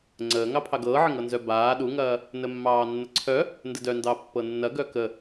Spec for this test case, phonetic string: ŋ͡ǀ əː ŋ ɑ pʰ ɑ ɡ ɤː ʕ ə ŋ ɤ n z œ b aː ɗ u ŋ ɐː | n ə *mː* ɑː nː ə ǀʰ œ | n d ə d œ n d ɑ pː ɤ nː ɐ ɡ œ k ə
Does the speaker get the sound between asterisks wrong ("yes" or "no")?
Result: no